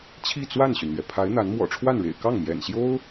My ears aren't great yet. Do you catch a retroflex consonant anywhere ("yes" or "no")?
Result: yes